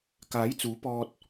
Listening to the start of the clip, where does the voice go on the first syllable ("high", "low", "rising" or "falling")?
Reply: rising